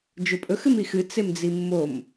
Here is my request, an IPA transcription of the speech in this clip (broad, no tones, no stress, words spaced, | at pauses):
d͡ʒɵpʼɵx ɨmixɨ t͡semd͡zimːom